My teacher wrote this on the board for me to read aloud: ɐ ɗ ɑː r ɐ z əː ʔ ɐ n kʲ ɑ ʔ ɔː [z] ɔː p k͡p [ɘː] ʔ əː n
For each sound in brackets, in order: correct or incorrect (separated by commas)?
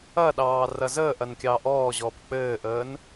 incorrect, correct